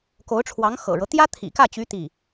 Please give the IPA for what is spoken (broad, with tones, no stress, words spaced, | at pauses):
ko˧˥ʊ̯ʈ͡ʂʰwɑ˧˥ŋ xɤ̰˨˩ɻɤ˦ t̪jä˥t̪ʰḭ˨˩kä˥˩t͡ɕy˧˥ t̪i˥˩